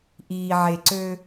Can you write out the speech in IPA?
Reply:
ʔiː˩ʕe˩ǀø˨

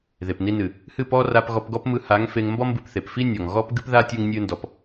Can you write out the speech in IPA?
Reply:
ðe˨pni˧nɨ˨ | hɨ˦˨pɔ˦ ra˧pɣɔ˧pɡɔ˦pmɯ˧ ha˨˦ŋ fe˧ŋ mbɔ˦mbɨ˧pθe˨p fi˦nʲɔ˨ŋ ɣɔ˦pɡɨ˦pða˦ tʲɯ˧ŋnʲɨ˧ndɔ˨p

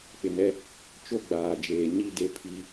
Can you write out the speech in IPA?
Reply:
k͡pɪ˨nɛ˦ | t͡ʃo˦ɡ͡baː˨d͡ʒeː˨ ɲi˦de˦ pʰi˦

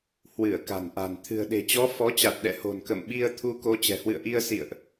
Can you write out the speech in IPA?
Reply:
hwɨ˧˩ə̯ka̤˨˩nʔa̤˨˩n t̪ʰɨ̤˨˩ə̯ɗe̤˨˩t͡ɕɔ˨˦ fɔ˨˦t͡ɕa˨˩t̚ ɗɛ̰˧˨ho̤˨˩n kə̰˧˨mɓi˧ə̯ t̪ʰu˧ko˨˦ t͡ɕɛ̤˨˩hwɨ̰˧˨ə̯ʔi˧ə̯ sḭ˧˨ə̯ʔ

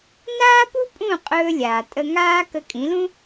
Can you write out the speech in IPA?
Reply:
naː˥pu˥pʼũ˥˩ qʼɵː˧lʲaː˩ tʼə˧ ŋaː˥ kə˧kʼĩ˩˥lũ˥

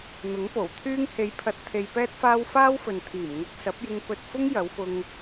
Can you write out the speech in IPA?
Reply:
n̪ʊ˨˥ŋpo˨˩w t̪ʰyː˧ŋhe˨˧jpʰɐ˨t̚ t̪ʰe˧jpɛː˥t̚faː˥w faː˥wfɵ˨n t̪ʰiː˨˩mŋɐ˧k̚ sɐ˨˥p̚jɪ˧ŋ pɵ˧t̚fʊ˥ŋ jɐ˨˧wfʊ˧ŋ

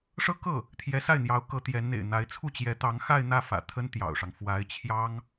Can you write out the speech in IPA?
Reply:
ʂɤ˥kɤ˥˩ | t̪ʰjɛ˧˥sa˥˩ɪ̯n̪jɑ˧˥ʊ̯ kɤ˧˥t̪jɛ˧˥n n̪ḛ˨˩ɪ̯n̪a˧˥ɪ̯ t͡sʰu˥˩t͡ɕjɛ˧˥t̪ɑ˧˥ŋ xa˥˧ɪ̯n̪ä˥˩ fä̰˨˩t̪ʰə˥n t̪jɑ̰˨˩ʊ̯ʂɑ˦ŋ fwa˧˥ɪ̯ t͡ɕʰjɑ˥ŋ

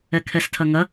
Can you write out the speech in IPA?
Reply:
ɛkʰɛstʰɐŋɐ

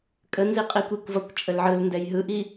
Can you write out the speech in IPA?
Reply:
kʼənzi qʼikʷikʷvʌkʷ t͡ʃʼəlʕɯlndɛj ɦɯʔi

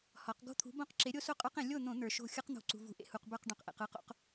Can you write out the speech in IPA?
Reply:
hɒ˨˥q ɡo̤˥˨t̪ʰṳ˨˥bõ˦˥qǁe˨˥ ɾʲo˦˥so˥˨qʼə˞˦˥qẽ˧˩˧ lʲo˥˨n̪õ˧˩˧ n̪ə˞˩ʃo̤˥˨ xʲɯ˦˥qn̪o̤˧˩˧ǀṳ˩ vṳ˨˥ʔḛ˥˨ hu˩q bə˞˥˨q ɖõ˩qʔḛ˩qɯ˦˥qo̰˦˥q

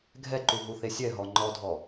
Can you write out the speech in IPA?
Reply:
ɡʱɛǃuɦuθe sʲɛɦɔ ŋ͡ǃɔdʱɔ

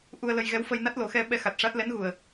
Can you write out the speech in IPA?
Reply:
ʔu˧ə̯lə˧jɣɛ˧˥w fə˧jna˦˥t̚lo˨˩˦xɛ˧ ɓɛ˧xa˨˩t̚ʂa˦˥t̚ lɛ˧˥nɣu˨˩ə̯

